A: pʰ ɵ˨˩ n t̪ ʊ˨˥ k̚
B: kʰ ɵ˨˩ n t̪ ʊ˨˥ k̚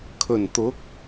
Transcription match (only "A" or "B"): B